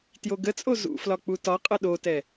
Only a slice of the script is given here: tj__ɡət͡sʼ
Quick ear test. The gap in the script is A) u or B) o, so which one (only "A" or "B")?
B